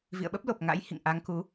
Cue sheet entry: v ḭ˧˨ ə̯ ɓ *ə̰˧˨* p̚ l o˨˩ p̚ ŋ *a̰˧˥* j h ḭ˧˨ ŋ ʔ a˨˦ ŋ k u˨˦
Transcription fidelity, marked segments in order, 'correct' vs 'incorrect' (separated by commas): incorrect, correct